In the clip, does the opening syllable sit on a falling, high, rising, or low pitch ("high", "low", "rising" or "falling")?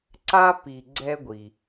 high